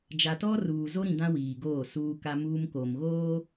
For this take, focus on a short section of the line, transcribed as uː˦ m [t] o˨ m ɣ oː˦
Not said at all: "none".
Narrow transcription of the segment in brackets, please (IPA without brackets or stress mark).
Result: k